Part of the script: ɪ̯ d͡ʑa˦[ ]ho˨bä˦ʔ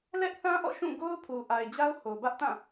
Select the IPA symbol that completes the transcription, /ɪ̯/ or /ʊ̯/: ʊ̯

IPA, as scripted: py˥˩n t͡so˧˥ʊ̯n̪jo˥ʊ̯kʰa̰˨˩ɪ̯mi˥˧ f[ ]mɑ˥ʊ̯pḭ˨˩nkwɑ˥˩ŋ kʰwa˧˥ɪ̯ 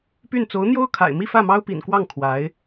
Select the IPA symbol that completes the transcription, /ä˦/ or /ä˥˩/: ä˥˩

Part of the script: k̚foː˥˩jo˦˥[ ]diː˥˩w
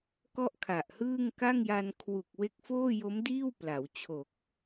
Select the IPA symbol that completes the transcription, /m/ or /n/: m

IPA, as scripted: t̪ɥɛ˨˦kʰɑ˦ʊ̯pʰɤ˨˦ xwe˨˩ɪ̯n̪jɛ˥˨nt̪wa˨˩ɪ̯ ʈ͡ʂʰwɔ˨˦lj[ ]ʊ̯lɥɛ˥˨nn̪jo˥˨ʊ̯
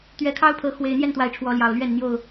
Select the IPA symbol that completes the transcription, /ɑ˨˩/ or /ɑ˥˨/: ɑ˨˩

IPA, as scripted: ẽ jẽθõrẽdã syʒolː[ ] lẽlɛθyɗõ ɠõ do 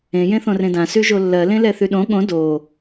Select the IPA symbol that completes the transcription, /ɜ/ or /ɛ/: ɜ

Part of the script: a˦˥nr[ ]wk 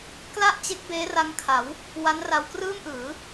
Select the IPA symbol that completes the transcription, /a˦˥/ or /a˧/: a˧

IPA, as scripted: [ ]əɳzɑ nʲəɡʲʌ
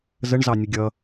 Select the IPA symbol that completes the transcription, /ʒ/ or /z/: z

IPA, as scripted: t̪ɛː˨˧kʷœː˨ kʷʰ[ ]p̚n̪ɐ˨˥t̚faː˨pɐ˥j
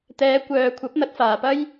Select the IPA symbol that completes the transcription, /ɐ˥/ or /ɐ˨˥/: ɐ˨˥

